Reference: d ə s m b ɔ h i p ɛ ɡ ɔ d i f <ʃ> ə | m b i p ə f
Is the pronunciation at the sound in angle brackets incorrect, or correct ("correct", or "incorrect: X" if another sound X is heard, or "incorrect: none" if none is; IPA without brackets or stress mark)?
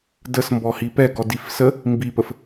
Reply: incorrect: s